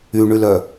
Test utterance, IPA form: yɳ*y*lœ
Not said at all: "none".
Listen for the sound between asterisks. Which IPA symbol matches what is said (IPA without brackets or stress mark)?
y